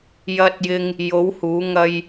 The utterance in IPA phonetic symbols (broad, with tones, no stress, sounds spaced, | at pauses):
j ɐ˧ t̚ j ɪ˧ ŋ | j o˨˥ w h uː˨˥ ŋ ɐ˥ j